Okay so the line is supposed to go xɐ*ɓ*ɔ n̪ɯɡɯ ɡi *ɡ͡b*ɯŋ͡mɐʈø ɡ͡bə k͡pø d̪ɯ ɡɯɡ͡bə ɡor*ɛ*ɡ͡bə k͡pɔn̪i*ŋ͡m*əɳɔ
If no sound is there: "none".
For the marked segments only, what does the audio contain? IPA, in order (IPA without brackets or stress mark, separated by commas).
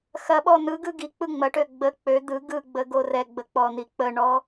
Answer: ɓ, k͡p, ɛ, k͡p